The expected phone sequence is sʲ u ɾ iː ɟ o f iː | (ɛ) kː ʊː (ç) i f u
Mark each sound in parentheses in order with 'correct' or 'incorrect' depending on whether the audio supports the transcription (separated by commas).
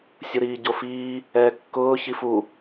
incorrect, correct